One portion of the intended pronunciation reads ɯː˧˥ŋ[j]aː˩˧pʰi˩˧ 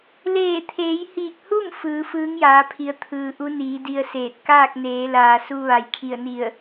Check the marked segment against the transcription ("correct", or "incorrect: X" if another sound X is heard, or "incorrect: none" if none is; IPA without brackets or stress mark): correct